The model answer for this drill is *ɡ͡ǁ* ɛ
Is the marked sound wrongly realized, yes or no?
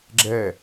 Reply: no